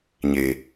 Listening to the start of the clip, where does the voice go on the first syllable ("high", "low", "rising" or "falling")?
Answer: low